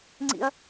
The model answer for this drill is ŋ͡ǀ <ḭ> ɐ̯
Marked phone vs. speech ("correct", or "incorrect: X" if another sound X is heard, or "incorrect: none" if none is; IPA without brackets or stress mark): correct